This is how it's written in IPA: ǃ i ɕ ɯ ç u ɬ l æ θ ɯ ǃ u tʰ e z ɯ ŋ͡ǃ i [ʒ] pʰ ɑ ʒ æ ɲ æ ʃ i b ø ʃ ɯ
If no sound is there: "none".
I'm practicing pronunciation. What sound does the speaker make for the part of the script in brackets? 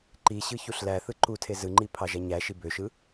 none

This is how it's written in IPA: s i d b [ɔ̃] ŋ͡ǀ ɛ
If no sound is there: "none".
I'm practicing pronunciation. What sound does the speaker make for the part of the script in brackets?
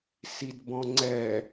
ɔ̃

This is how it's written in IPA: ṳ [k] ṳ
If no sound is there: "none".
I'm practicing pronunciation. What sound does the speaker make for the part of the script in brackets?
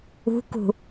k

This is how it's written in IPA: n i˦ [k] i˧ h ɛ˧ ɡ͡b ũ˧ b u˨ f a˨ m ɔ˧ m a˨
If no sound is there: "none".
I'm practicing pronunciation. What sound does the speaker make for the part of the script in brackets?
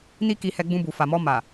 k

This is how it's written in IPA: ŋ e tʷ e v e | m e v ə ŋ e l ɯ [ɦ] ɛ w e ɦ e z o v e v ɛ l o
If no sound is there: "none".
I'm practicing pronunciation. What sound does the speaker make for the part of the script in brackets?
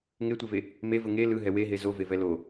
ɦ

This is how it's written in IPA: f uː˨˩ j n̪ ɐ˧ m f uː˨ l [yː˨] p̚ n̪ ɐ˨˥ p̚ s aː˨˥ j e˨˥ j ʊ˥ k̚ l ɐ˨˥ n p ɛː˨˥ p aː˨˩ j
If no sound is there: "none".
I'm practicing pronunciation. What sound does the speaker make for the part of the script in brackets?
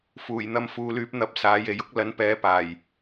yː˨˥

